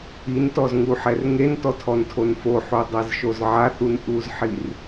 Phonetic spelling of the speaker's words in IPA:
i n t ɔ z ŋ u ħ ɛ r ŋ e n t ɔ tʰ ɔ n tʰ o n f o ħ o dˤ ɛ z ʃ o z ʕ a θ u n ʔ u z ħ i r

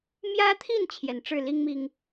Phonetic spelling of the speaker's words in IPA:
m j ä˦ t̪ʰ i˥˨ n t͡ɕʰ j ɛ˨˦ n ʈ͡ʂ ɻ̩˥˨ l i˦ ŋ m i˨˩ ŋ

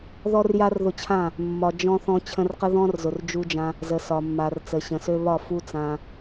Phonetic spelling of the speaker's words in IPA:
ð ɔ˦ r j a˦ r ð ʊ˧ t͡ɕʰ ã˦˨ | mː ɒ˨ d͡ʒ ɔ̃˧ θ ɔ̃˧ t͡ɕʰ ə̃˧ r q ə˦ ð ɔ̃˦ r z ʊ˨ r d͡ʒ u˧ d͡ʒ ã˧ | z ə˨ s ɒ˨ mː a˨ r t͡s ə˨ ɕ ə̃˨ s ø˧ β ɒ˦˨ f u˦ t͡s ã˧

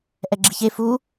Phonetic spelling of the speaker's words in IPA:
ʔ ɛ ɡ͡ǁ i ç e f u

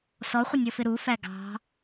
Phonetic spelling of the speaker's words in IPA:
s ɔ χʷ ə nʲ ʌ f ɪ ɾ u f æ ɡ ɑ̤

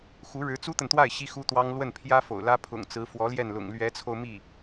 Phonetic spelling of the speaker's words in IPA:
x u˧˥ ɻ ɻ̩˧˥ t͡s u˥ t̪ ə˨ n t̪ w a˥˩ ɪ̯ ɕ i˥ x u˥ t̪ w ɑ˥ ŋ l w ə˥˩ n pʰ j ä˥ f o̰˨˩ ʊ̯ l ä˥ pʰ ʊ̰˨˩ ŋ t͡s ɹ̩˧˥ f w ɔ˧˥ l j ɛ˥˩ n l ʊ̰˨˩ ŋ l ɥ ɛ˧˥ t͡sʰ o˧ ʊ̯ m i˥˩

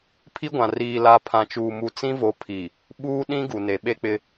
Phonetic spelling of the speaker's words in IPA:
pʰ i˦ ɡʷ ã˨ r iː˨ l a˨ pʰ ã˨ t͡ʃ uː˨ m u˨ t͡s ĩ˦ v o˨˦ pʰ i˨ | ɓ uː˦ ɗ ĩ˦ ɡ u˨ n e˨ ɓ e˦ k͡p ɪ˦

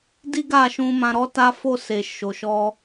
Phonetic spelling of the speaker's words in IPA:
d i˦ ɡ a˦˨ ʃ ũ˧ m ã˧ ɾ ɔ˦ t a˦ f o˦˨ s e˨ ʃ o˨ ʃ ɔ˧

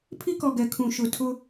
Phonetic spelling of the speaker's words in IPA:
pʰ i˦ k ɔ˨ ɡ ɛ˨ kʰ ũ˨ ʃ ʊ˨ tʰ ʊ˦

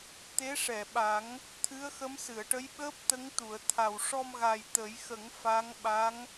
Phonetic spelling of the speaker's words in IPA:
t̪ e˧˥ ʂ ɛ˨˩˨ ɓ a˨˩˦ ŋ | t̪ʰ ɨ˧˥ ə̯ x ə˧˥ m s ɨ˨˩˨ ə̯ ʈ ə˧˥ j ɓ əː˦˥ p̚ t̪ ə˧˥ ŋ t̪ u˨˩˨ ə̯ t̪ʰ a˨˩ w ʂ ɔ˧ m ɣ a˨˩ j t̪ ə˨˩˦ j x ə˨˩˦ ŋ f a˧˥ ŋ ɓ a˧˥ ŋ

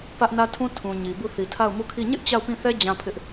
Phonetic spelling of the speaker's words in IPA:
p ä˦ ʔ n ä˦ tʰ ũ˦ tʰ ũ˨ ɲ i˨ b u˦˨ θ i˨ tʰ a˦˨ ʊ̯ m u˦˨ kʰ i˦˨ ɲ ɪ˦ ʔ t͡ɕ a˦˨ ʊ̯ p ĩ˦˨ θ ɛ˦ d͡ʑ ã˦ pʰ ɪ˦ ʔ

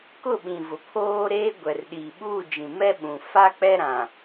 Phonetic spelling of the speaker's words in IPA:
k ʊ˦˨ ɓ ĩ˨ v ʊ˨ pʰ oː˦ ɾ eː˦ ɡʷ ɛ˨ r ɗ iː˨ ɓ uː˦˨ d͡ʒ ĩ˨ m ɛ˦ ɓ ũ˨ f a˦ k͡p ɛ˦ ɾ ã˨

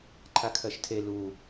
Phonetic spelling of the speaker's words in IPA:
ǃʰ a kʰ ɜ ʃ tʰ e l u

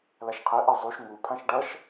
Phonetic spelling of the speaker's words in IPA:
l a ʃ qʰ ɛ ʔ ɛ zˤ u ʃ ŋ u pʰ ã ʃ ɖ ʌ ʃ

